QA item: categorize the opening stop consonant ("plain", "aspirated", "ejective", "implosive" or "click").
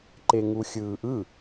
click